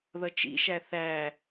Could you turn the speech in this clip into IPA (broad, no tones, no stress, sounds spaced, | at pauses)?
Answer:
ð ʌ t͡ʃ ḭ ʃ æ θ æ